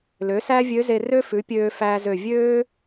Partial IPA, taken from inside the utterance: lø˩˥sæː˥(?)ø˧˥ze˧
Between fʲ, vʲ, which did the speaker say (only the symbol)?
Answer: vʲ